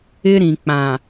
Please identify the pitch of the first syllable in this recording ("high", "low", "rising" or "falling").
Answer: high